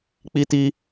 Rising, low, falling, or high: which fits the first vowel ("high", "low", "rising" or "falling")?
high